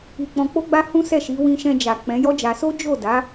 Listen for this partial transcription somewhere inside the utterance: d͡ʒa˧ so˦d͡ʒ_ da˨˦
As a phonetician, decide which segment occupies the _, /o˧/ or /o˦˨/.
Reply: o˦˨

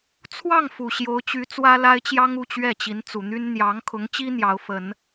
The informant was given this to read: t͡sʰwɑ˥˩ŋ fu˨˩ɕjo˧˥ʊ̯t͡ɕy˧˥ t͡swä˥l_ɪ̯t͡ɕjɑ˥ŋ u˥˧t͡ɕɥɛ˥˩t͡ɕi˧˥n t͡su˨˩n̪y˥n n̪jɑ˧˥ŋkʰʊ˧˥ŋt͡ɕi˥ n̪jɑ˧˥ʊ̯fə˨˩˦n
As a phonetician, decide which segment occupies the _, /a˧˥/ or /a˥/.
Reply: a˥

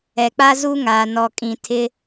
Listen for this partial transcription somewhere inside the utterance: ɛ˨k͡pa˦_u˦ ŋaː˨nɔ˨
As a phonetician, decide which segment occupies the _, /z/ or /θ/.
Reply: z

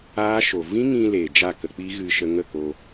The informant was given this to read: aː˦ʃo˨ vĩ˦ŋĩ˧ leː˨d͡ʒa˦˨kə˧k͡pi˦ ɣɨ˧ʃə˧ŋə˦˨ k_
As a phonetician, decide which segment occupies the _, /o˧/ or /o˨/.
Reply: o˧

